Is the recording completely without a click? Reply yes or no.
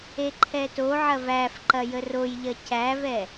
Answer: no